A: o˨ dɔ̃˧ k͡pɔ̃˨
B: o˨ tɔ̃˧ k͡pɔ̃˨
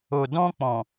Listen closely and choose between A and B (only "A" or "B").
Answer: A